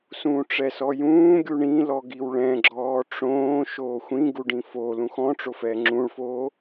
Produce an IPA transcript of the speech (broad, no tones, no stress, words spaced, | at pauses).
sũːʈ͡ʂɛsɔjũː ɡʲuɳĩlɔ ɡiwɭɛ̃ɡ͡ǁɔː ʈ͡ʂõː ʃoːxʷĩ ɡuɖĩfo lũxɔ̃ ʈ͡ʂofɛːŋ͡ǁũɭfoː